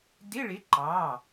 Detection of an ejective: absent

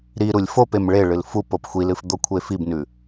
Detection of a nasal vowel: absent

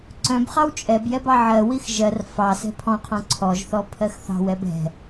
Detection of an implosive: absent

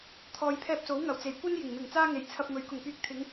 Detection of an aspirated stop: present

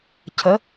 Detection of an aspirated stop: present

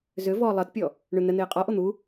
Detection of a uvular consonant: present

